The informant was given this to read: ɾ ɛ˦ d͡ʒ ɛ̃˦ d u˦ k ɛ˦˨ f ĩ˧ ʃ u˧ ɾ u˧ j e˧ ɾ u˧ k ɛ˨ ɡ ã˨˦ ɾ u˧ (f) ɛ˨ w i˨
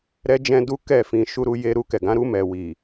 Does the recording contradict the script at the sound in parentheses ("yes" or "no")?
yes